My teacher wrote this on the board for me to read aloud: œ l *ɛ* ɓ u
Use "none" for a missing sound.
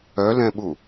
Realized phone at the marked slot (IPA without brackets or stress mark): ɛ̃